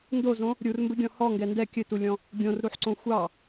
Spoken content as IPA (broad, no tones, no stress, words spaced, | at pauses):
ndozõ | ɾʲurmbɘɡʲɔ̃ hɔŋɡɛ ndɛ kʲɘtulʲɔ̃ | ɡʲõrɾuħǀõ xʷɑ